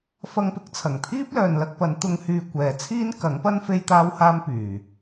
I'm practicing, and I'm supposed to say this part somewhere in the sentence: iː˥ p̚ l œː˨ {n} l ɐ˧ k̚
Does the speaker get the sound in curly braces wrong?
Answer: no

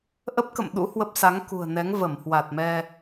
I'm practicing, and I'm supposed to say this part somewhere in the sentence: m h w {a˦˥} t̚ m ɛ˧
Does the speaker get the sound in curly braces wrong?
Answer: yes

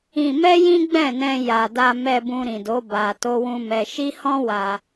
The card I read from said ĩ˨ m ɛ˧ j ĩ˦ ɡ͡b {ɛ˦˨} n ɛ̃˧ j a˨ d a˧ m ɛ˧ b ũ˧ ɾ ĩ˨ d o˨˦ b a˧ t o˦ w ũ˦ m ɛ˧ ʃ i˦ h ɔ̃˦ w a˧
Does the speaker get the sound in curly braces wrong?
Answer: yes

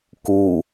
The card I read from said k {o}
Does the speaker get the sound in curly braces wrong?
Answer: yes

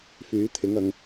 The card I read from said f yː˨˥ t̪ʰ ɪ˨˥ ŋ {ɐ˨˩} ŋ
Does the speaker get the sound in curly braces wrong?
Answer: yes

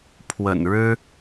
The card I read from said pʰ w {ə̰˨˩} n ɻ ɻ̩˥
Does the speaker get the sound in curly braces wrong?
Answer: no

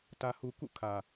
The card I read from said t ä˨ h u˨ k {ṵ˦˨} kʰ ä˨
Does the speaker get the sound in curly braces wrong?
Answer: no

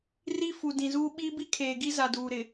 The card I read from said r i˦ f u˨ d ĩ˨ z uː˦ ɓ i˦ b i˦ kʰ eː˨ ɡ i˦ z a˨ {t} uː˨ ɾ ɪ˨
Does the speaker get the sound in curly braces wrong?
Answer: yes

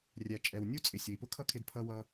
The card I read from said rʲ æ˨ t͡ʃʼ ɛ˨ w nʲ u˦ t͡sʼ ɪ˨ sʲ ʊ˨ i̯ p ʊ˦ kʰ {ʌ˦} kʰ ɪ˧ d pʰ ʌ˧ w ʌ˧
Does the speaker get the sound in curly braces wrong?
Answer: no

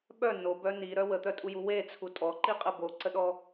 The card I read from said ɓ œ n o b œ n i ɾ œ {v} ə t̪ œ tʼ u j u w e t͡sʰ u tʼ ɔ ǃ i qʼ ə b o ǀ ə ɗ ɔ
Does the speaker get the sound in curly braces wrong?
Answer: yes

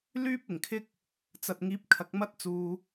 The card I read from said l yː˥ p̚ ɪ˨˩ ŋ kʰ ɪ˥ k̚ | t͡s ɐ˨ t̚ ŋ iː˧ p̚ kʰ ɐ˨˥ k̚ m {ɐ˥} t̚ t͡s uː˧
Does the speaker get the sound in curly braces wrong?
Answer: no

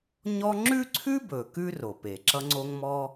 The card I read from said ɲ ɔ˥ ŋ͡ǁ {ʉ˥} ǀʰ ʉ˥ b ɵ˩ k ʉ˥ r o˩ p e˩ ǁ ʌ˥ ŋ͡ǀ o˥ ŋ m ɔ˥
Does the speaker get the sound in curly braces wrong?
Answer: no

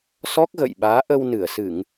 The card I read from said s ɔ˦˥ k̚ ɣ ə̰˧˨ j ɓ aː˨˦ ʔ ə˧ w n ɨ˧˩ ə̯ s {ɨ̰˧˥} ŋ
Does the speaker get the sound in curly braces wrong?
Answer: yes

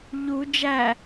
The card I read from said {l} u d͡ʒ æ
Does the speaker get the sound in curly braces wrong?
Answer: yes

